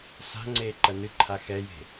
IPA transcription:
sa̤ ŋ͡ǀeːǃɐnɨǃʰa xɛje̤

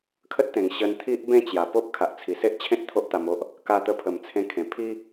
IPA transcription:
kʰə˦t̚t̪ẽ˨˩ŋ ɕə˧n t̪ʰi˦ʔbẽ˥˧ t͡ɕja˨˩po˦p̚ kʰa˨ʔt͡sʰi˨˩ se˦ʔt͡ɕʰẽ˦t̚ t̪ʰo˦ʔt̪a˧mo˦ʔ | ka˧t̪ə˧ pʰə˨˩mt͡sʰẽ˧kʰẽ˨˩ pʰi˦

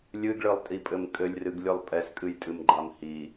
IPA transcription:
lʲɨɡɭɨlˠtʼipʼɘm kʼɘlʲrɨɡ lʲɨlˠpʼɛskʼɨj tʼɨmɡ͡ǃamhi

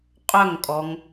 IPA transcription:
qʼœŋkʼɔŋ

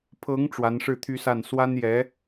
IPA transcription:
pʰɤ˧˥ŋ ʈ͡ʂwa˧˥nʂɻ̩˥˩t̪ʰy˥sa˥˩n swa˥njɛ˧˥

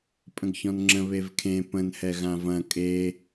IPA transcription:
pʼə̃ɡçɔ̃nŋ͡ǁə̃ βevkʰẽ pə̃nhɛ ɣãvɐ̃ kʼe

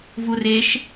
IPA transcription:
vureʃ

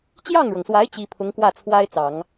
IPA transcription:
t͡ɕjɑ˥˩ŋɻɤ˩ŋswa˧˥ɪ̯ t͡ɕi˥ pʰʊ˧˥ŋkwä˥˩t͡sʰwa˥ɪ̯t͡sɑ˨˩˦ŋ

